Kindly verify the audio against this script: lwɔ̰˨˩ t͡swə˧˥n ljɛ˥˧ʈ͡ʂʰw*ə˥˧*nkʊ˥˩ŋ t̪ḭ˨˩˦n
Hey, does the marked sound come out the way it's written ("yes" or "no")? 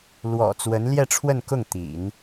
yes